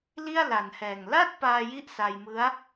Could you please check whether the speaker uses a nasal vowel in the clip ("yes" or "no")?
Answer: no